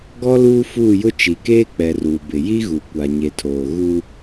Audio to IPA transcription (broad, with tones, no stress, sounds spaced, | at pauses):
ɡ ɔ˦ l uː˦ f uː˦˨ j ʊ˦ t͡ʃ i˨ k eː˦ k͡p ɛ˨ r uː˨ b ɪ˨ j i˦ ɣ u˨ kʷ a˨ ɲ e˨ tʰ oː˨ ɣ u˦